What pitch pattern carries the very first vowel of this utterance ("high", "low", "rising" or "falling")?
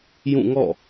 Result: falling